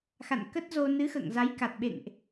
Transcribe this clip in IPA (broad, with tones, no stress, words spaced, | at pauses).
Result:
xa̰˧˨nkə˦˥t̚zo˧ nɨ˨˦xə̰ː˧˨ŋza˨˦j ka˨˩t̚ɓḛ˧˨ŋʔ